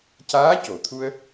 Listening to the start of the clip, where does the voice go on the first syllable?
rising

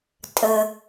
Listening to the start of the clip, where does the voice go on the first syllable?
low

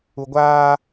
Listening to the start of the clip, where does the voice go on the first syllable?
low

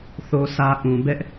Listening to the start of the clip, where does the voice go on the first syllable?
high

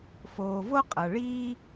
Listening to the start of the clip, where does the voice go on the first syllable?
low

